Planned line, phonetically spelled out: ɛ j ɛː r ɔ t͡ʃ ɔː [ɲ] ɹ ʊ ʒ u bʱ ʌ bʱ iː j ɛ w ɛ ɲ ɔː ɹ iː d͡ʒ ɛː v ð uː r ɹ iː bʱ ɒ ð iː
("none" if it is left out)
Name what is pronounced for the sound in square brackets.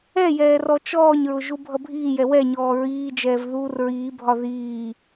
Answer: ɲ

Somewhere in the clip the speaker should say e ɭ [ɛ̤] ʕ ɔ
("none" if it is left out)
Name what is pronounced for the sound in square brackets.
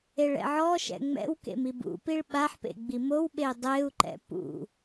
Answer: ɛ̰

